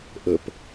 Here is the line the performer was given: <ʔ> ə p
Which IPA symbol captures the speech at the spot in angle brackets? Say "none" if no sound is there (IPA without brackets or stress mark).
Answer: ʔ